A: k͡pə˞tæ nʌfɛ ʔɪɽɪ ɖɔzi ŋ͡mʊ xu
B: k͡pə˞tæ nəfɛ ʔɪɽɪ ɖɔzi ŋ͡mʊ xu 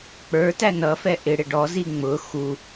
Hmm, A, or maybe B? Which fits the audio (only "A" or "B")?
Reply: A